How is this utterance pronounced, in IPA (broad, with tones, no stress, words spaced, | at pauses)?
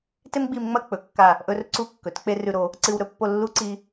te˥mɡ͡bi˧mŋ͡mɐ˥˧ k͡pɵ˩˧kːa˧˩ | ʔɵ˧rǀu˧˩kːɵ˩˧t k͡pe˥rʉ˧ɾo˩˧ | ǀɨ˧wɾɵ˥˧pːo˥˧ lːu˥ǀi˧